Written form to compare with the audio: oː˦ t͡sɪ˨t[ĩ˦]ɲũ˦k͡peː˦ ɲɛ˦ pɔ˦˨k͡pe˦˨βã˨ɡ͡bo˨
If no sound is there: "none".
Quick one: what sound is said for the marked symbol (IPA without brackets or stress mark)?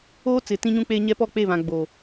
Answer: ĩ˦